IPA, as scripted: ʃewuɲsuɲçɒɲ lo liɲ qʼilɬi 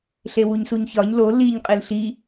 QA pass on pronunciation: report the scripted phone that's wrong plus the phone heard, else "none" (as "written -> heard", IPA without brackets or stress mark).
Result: ʃ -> ɬ